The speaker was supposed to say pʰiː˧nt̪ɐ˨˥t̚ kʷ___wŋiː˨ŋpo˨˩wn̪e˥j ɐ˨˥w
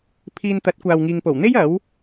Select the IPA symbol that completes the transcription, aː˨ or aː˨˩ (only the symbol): aː˨